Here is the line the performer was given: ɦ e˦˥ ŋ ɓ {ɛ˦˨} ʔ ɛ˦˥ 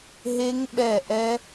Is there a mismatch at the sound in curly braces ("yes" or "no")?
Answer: no